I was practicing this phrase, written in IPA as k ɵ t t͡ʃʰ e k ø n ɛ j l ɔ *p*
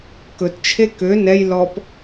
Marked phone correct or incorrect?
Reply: correct